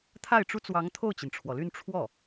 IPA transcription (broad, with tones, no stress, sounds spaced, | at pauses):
t̪ʰ a˥˩ ɪ̯ ʈ͡ʂ u˥ t͡s w ɑ˧˥ ŋ t̪ʰ o˥˩ ʊ̯ t͡ɕ i˩ n ʈ͡ʂʰ w ɔ˩ l y˥˧ n ʈ͡ʂʰ w ɔ˥˩